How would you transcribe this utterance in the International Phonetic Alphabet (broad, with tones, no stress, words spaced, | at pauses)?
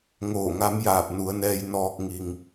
ŋoː˧˩ŋa˧˥mjaː˧˩p̚ nu˩˧ə̯nɛː˧j nɔː˧k̚ ŋi˩ŋ